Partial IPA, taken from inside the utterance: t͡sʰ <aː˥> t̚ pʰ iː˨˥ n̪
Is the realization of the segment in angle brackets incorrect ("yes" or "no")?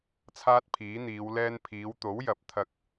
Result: no